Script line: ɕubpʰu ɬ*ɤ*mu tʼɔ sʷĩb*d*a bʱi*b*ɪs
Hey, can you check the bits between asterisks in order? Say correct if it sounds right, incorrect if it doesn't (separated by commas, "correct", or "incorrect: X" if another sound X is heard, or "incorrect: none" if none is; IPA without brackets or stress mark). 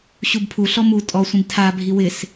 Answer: incorrect: ɔ, incorrect: tʰ, incorrect: w